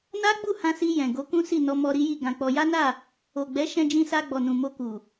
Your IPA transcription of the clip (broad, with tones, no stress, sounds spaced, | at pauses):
n a˦ ɡ͡b u˦˨ h ã˧ s i˧ j ɛ̃˨ ɡ o˨˦ k ũ˦ s i˦˨ n ɔ˧ m ɔ˧ ɾ i˦ j i˦˨ ɡ ã˧ k͡p ɔ˧ j a˦ n a˦˨ | o˨ ɡ͡b ɛ˨˦ ʃ ɛ̃˧ d͡ʒ ĩ˧ s a˧ ɡ͡b ɔ˨ n ũ˨ m o˧ k u˨